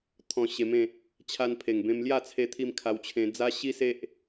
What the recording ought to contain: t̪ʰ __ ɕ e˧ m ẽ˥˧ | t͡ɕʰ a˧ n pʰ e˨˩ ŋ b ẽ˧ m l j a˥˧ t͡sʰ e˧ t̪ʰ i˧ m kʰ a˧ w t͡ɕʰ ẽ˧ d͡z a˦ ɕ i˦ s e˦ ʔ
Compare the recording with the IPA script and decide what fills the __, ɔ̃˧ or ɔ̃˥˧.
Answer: ɔ̃˧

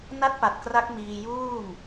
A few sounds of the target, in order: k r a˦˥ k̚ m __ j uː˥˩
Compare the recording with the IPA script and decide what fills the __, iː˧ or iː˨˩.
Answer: iː˧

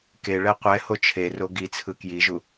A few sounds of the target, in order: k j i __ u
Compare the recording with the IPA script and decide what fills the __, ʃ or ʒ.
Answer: ʒ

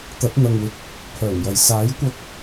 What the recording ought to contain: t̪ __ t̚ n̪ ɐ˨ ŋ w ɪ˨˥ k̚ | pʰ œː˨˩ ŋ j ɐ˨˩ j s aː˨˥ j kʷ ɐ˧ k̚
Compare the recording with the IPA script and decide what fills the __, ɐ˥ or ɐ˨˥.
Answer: ɐ˨˥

